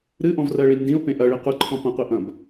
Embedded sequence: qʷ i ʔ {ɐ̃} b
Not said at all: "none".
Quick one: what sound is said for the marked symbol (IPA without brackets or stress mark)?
ɐ̃